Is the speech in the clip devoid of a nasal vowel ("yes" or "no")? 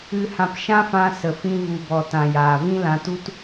no